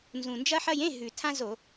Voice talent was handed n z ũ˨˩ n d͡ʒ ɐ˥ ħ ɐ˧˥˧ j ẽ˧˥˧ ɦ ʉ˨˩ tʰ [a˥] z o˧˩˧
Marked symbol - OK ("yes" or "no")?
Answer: no